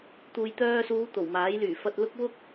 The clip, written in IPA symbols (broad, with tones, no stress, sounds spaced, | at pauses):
t̪ uː˨ j t̪ œː˧ s uː˨˧ t̪ o˨˩ w m aː˨˥ j l yː˨˩ f ɐ˧ t̚ l ʊ˥ k̚ w ʊ˥ k̚